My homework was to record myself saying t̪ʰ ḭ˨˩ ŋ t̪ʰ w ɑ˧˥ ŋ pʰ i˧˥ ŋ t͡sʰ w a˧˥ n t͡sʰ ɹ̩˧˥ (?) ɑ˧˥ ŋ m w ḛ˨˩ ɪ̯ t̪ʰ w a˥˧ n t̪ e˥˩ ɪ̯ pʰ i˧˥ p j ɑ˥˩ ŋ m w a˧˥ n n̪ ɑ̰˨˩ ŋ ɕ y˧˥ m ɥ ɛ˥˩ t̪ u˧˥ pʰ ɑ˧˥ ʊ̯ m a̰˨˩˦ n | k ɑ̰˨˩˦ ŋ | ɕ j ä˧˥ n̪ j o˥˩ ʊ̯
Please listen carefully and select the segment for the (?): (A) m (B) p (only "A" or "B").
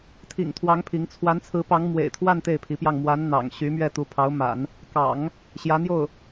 B